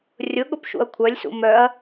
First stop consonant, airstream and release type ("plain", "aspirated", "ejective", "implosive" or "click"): implosive